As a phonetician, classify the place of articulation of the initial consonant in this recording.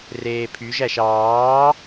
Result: alveolar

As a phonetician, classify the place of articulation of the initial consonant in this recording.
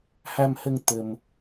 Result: glottal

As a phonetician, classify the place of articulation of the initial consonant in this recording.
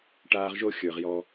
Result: retroflex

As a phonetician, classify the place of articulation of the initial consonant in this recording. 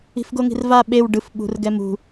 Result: labial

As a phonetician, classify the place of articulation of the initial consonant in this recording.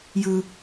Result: palatal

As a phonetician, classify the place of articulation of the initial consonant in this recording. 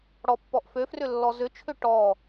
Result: retroflex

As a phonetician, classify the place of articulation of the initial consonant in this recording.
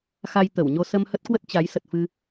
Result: velar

